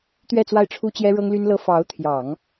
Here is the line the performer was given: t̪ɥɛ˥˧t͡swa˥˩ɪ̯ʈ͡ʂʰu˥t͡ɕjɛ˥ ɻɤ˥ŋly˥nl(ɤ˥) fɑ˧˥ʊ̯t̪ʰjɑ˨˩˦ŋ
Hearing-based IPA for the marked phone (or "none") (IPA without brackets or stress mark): ɤ˥